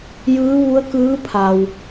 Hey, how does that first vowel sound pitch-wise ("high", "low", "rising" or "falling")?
rising